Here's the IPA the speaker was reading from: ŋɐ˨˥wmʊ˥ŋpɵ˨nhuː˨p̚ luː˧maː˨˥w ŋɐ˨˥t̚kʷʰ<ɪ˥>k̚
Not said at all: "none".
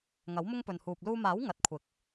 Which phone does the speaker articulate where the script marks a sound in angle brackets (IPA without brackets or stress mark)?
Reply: ɪ˨˥